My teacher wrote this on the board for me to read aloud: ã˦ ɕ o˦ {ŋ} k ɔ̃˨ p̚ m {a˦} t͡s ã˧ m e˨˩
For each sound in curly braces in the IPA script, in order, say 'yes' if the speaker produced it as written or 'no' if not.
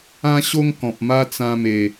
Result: yes, yes

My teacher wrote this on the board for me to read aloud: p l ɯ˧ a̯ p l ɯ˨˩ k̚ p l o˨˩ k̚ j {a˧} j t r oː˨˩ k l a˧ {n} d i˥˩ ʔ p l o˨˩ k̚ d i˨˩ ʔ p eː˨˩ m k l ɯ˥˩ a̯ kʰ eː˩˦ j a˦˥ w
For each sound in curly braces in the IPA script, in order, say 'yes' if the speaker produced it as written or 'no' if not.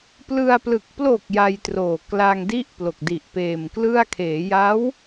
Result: yes, no

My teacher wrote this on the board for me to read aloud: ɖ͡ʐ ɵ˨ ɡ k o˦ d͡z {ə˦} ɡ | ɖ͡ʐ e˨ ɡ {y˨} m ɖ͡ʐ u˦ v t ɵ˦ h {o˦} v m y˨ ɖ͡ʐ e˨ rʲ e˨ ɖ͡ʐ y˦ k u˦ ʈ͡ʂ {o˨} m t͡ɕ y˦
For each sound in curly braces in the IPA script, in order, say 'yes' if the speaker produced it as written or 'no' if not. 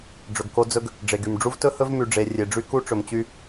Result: no, yes, no, no

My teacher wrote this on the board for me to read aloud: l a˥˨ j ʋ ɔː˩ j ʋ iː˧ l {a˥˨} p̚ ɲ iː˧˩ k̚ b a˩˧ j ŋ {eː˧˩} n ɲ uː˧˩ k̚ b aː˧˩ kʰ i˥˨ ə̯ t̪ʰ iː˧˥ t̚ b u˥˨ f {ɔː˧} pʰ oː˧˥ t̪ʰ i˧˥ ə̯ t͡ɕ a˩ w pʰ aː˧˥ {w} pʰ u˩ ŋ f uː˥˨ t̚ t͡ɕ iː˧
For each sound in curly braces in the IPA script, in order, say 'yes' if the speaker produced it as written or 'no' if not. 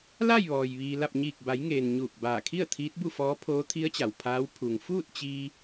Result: yes, no, no, yes

